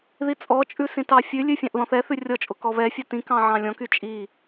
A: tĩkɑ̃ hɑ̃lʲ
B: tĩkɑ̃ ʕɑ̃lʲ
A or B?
B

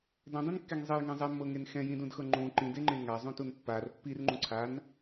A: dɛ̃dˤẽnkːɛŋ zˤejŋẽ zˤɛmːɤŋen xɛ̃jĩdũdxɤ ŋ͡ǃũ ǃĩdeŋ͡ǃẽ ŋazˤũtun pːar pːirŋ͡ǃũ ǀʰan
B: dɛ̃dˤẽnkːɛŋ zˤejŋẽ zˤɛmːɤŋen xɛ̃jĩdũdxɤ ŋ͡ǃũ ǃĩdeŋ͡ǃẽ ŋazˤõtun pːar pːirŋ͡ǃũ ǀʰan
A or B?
A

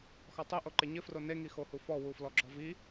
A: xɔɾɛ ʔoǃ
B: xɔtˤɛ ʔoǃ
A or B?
B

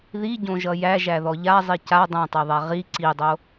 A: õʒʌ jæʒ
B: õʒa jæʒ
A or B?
A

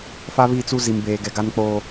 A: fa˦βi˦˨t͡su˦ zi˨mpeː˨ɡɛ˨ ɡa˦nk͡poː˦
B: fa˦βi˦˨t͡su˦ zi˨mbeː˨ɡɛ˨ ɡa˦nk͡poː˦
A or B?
B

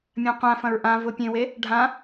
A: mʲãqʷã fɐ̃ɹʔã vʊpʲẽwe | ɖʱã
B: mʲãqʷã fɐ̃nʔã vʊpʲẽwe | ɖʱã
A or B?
A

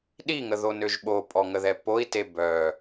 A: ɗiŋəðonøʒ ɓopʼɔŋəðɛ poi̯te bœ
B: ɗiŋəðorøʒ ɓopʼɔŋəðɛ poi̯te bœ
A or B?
A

